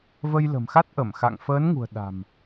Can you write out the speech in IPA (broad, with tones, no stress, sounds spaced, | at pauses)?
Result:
v ə˧ j l ə̤˨˩ m x a˦˥ t̚ ʔ ə˧˩ m x a̰˧˨ ŋ f əː˨˦ n ŋ ṳ˨˩ ə̯ ɗ a̤˨˩ m